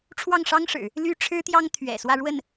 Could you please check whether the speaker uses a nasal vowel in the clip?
no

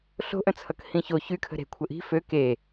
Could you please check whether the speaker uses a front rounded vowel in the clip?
yes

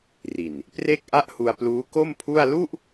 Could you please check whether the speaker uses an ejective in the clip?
no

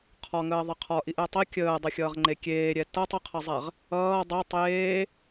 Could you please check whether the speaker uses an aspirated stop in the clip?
yes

